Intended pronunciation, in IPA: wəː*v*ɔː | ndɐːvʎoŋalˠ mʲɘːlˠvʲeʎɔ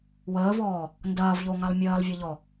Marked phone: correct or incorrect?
correct